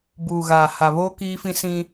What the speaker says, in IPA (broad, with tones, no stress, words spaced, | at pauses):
buː˨ɣaː˨ ha˨βoː˦ kiː˦fĩ˦sĩ˦